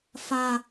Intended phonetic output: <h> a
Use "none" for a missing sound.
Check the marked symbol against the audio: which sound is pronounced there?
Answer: f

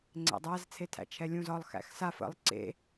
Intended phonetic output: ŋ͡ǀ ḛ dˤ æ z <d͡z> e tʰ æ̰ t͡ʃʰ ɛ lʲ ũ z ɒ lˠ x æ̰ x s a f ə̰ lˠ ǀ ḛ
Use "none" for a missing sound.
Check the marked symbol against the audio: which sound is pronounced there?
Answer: t͡sʰ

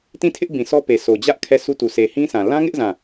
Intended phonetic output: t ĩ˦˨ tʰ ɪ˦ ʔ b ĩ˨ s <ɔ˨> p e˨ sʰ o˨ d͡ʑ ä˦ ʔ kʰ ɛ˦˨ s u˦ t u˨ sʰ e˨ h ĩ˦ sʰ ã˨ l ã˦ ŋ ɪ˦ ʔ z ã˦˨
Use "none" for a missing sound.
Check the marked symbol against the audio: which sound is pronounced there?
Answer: ɔ˦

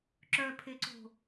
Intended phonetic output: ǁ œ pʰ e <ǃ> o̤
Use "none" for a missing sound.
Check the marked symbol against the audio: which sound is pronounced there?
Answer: ǀ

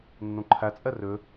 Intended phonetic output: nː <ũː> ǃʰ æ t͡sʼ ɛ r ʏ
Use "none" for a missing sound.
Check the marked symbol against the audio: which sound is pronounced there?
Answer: ũ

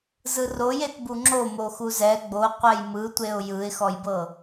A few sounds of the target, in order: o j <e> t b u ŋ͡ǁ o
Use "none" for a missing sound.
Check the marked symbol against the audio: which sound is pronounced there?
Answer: e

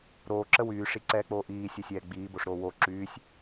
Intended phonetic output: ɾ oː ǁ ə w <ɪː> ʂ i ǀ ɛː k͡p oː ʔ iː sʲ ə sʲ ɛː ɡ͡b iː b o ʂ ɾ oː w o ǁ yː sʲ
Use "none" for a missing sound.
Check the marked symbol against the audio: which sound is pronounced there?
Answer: yː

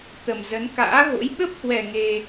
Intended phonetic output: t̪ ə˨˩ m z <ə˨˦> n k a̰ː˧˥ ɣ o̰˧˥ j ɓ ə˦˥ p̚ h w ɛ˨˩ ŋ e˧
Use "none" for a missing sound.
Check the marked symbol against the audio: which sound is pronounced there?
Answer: ə˨˦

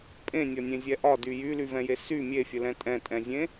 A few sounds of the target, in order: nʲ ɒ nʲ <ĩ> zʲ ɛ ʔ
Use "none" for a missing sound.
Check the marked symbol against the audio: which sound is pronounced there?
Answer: ẽ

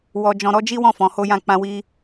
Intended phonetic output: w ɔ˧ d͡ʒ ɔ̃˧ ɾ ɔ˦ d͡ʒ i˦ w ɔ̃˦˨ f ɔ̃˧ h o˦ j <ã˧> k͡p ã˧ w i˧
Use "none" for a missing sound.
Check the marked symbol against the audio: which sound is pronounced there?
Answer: ã˦˨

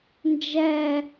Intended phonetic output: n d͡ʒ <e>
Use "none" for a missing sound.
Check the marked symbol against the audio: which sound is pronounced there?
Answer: ɛ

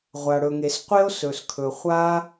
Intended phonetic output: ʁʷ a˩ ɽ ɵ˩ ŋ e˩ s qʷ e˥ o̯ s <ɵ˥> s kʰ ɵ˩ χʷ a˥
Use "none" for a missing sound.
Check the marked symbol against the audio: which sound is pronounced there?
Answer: ɵ˩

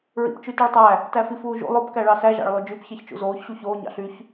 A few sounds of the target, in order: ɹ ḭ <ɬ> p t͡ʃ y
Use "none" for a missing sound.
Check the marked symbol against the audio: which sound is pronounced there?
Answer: none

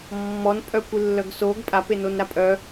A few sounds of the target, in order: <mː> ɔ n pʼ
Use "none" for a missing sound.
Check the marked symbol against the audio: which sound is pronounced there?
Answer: mː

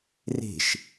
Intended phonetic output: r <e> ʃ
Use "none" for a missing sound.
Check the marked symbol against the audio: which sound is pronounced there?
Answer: e̤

